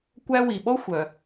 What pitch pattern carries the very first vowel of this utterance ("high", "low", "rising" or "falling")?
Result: high